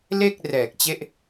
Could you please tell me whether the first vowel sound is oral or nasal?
oral